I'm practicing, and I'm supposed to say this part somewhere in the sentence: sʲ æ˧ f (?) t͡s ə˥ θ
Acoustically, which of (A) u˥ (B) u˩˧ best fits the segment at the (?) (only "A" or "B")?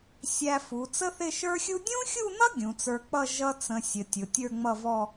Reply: B